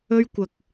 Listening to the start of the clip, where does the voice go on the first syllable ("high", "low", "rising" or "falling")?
high